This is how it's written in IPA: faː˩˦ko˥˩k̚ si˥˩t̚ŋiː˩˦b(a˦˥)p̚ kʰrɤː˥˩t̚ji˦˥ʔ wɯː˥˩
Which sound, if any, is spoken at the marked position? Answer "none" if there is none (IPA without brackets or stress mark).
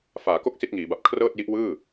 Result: a˨˩